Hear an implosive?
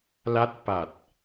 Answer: no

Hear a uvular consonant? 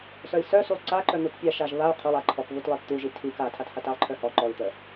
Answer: yes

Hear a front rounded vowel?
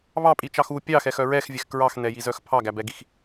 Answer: yes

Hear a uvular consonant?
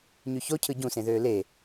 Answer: no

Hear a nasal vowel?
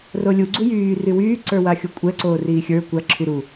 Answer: no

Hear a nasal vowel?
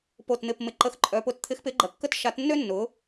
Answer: no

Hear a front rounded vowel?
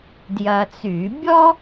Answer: yes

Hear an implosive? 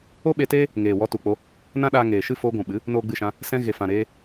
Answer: yes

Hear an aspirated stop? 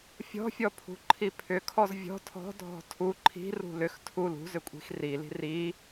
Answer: yes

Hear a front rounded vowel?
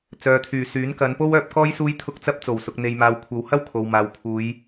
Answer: yes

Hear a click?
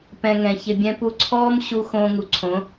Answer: yes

